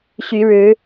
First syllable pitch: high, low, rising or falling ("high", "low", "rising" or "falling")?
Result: rising